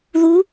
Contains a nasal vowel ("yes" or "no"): no